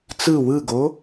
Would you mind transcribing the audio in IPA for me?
t͡sɯ wɯɡo

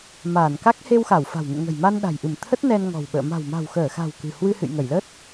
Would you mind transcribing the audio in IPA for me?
maː˧˩nka˦˥k̚ he˧wxa˧˩w fa̤˨˩wŋṵ˧˨ŋə̤˨˩jma˧n ɗa̤˨˩jʔɨ˧˩mt̪ʰə˦˥t̚ nɛ˧nŋɔ̤˨˩wɓə̰ː˧˨ ma̤˨˩wma̤˨˩wxəː˧˩xa̤˨˩w kɨ̤˨˩ hwɨ˧hɨ̰˧˨jŋə˧˩j lə˦˥t̚

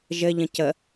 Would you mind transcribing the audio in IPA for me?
ʒɘʎə̃ cə

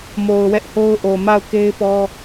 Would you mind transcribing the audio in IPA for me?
mo˨ʊ̯wɛ˦ʔho˦ʊ̯ ʔo˨ma˦˨ʊ̯ke˦ɪ̯pɔ˦

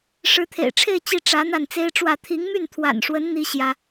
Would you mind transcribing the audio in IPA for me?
ʂɻ̩˧˥t̪ʰḛ˨˩ɪ̯ʈ͡ʂʰe˥˧ɪ̯ t͡ɕi˥˩ ʈ͡ʂä˧˥ n̪a˥˩nt͡se˥ɪ̯ʈ͡ʂwä˥˩ t̪ʰi˧˥ŋmy˥˩nt̪ʰwa̰˨˩nʂwə˧˥n n̪i˥ ɕjä˥

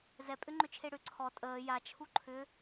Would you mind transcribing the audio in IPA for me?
zɛpʼʏŋ͡ǃʏt͡ʃʰe ɽʏ ǀʰɔ tʼəː jat͡ʃʰu ǃʰʏ

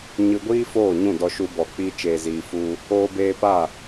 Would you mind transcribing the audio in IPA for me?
ɲɨ˧ɡʷiː˦foː˦˨ɲũ˦˨ dɔ˧ʃu˧bɔ˨ k͡pi˧ t͡ʃeː˨ziː˨ fu˧ | oː˧beː˧pa˦˨

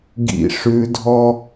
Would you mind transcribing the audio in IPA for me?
ɡḭ ʂʉdʱɔ

